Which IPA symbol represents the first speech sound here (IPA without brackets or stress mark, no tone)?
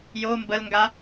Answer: j